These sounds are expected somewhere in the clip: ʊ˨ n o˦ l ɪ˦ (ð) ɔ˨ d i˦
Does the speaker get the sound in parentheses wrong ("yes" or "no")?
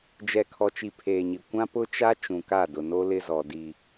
yes